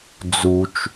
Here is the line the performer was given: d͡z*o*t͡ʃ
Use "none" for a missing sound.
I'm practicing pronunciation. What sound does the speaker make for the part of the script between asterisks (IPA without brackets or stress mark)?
u